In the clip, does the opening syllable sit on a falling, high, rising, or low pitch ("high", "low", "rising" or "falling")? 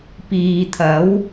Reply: low